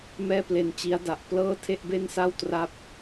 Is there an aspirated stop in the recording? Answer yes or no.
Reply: yes